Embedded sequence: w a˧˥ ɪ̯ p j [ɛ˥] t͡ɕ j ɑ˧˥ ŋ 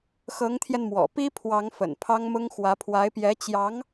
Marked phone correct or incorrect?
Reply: incorrect